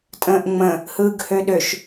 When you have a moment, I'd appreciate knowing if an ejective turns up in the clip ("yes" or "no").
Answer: yes